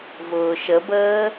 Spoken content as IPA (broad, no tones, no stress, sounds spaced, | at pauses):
v ʊː ʃ ə b əː